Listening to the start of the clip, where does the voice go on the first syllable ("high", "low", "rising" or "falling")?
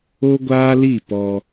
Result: high